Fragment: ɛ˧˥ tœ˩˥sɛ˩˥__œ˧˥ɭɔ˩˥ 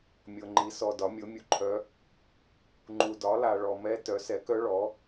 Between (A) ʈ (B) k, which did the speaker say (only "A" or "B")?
B